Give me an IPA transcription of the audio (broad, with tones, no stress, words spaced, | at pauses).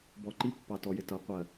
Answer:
bɔ˨ǃi˦˨pːɑ˨ tɔ˨jɪ˨ tʌ˨˦ qʷɜ˨